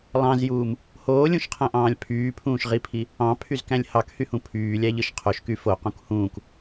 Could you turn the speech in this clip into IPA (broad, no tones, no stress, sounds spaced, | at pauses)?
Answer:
lˠ ɑ̃ z j uː m | h oː lʲ ũ ʃ qʰ æ̃ ʔ ɑ̃ː lʲ pʰ yː pʰ ũː ʃ ʁ i pʰ i | ɑ̃ pʰ y z k æ̃ lʲ h ɑ k h y h ũ pʰ yː lʲ æ ʎ ɯ ʃ qʰ o ʃ k y f o q ũ k h ũː k